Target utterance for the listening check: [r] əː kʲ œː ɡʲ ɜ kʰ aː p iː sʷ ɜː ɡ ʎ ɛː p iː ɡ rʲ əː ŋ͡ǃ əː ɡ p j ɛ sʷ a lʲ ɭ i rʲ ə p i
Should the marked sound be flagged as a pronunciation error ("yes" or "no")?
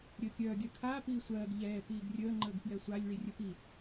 yes